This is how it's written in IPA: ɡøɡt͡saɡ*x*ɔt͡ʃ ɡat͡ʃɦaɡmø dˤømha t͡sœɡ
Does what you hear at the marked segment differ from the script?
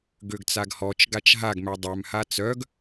yes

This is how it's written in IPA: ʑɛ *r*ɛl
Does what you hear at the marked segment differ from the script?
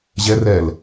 no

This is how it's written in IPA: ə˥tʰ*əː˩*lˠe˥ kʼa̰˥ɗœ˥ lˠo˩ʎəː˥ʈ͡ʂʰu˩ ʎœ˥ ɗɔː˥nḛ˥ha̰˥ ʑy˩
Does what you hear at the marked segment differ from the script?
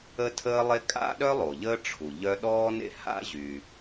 yes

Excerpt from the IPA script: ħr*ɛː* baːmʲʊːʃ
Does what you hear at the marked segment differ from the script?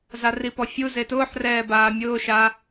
no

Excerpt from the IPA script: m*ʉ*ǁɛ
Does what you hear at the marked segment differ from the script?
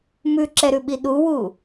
no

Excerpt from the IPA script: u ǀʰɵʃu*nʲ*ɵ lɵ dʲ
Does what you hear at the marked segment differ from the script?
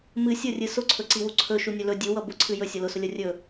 no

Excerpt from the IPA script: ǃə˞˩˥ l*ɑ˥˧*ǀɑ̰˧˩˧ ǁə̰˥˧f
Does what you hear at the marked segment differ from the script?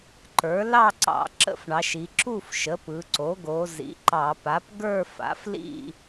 no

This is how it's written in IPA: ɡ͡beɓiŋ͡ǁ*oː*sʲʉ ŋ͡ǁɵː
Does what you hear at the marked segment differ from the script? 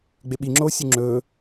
no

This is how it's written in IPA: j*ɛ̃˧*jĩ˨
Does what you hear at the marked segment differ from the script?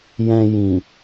no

